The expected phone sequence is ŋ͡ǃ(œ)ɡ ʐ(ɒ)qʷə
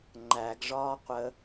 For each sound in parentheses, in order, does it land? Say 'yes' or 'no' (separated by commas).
no, no